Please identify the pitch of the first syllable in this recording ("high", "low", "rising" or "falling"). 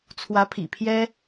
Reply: rising